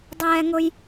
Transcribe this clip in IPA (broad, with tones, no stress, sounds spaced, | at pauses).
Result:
dˤ ɛː˥ ŋ ʊ˥ j